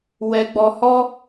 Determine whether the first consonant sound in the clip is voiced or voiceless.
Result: voiced